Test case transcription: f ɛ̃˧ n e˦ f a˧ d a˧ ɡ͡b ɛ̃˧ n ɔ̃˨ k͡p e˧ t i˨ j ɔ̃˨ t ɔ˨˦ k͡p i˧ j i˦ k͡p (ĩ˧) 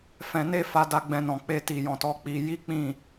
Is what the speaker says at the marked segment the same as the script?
no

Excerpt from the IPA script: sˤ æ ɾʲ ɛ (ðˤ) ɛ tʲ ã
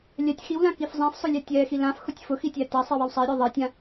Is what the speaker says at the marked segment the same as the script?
yes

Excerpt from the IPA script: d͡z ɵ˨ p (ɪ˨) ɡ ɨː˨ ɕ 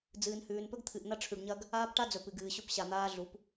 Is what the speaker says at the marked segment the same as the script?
no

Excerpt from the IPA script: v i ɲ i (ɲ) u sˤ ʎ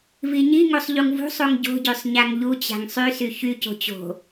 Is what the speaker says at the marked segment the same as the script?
no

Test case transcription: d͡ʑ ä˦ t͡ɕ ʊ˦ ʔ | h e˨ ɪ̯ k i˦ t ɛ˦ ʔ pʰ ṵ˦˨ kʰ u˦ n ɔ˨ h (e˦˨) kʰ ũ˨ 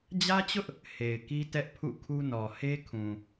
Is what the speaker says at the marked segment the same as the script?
no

